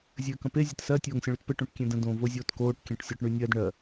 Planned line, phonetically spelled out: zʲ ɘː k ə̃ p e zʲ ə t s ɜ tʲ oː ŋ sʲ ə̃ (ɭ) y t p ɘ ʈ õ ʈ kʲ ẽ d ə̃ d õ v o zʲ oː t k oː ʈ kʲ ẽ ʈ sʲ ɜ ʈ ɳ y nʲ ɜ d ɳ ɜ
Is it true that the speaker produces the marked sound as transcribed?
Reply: yes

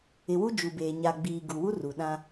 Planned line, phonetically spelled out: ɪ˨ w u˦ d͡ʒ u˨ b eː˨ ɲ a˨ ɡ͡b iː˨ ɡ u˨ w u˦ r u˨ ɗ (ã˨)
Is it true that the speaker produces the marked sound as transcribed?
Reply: no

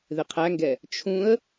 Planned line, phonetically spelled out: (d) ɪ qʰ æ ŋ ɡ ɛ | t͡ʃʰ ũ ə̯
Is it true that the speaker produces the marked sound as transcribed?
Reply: no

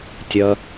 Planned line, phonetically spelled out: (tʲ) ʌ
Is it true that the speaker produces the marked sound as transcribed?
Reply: yes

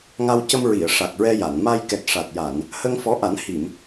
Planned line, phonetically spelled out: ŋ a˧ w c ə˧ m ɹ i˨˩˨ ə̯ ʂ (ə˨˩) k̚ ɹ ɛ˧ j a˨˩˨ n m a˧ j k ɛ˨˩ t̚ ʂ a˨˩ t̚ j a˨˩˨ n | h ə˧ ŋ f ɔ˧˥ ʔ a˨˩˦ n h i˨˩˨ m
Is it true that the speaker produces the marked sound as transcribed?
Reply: no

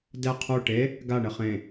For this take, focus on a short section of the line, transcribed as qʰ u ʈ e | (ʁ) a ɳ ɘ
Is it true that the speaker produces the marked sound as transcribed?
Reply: no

